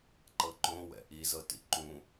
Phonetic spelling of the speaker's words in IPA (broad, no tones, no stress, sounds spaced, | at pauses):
ǃ ɤ ǃ õ w ɛ̰ ʔ i z ɤ t ḭ ǃ ũ